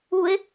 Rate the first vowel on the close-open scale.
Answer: close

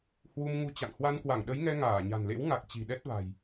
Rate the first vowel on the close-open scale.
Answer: close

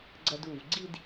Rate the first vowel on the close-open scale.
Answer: open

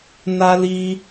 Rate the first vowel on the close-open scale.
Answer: open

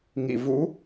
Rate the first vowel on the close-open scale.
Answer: close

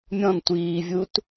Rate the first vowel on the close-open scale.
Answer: mid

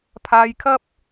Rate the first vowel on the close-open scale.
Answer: open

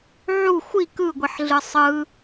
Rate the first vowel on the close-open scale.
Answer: close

